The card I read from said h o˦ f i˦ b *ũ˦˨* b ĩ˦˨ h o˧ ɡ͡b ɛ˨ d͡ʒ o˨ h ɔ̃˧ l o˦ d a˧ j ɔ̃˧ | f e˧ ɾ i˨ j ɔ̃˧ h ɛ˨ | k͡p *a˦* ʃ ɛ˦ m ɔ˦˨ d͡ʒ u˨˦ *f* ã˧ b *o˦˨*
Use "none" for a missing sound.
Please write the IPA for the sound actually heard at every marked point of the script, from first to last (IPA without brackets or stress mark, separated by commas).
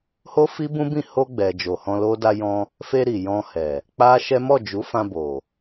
ũ˦, a˦, f, o˨